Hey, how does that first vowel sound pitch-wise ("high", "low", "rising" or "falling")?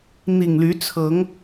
low